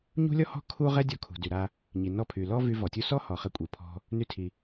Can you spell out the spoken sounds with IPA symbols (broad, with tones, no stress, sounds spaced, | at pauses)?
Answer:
ɲ ṳ˥ lʲ ɔ˥ h ɔ̤˥ kʰ u˥ ʁ ɛ˥ dʲ ɔ˧ kʰ ṳ˩ d y˩ ɾ a˧ | ɲ i˩ n ɔ˧ pʰ y˩ l ɔ˥ v y˧ v ɔ˩ tʲ u˧ s ɔ˥ h ɔ˩ χ ɛ˧ kʷʼ i˩ pʰ ɔ̤˧ | n y˧ tʰ i˩